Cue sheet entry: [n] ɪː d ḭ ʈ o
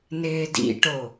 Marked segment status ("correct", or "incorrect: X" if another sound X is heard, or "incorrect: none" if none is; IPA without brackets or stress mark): correct